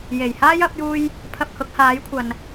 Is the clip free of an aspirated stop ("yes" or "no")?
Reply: no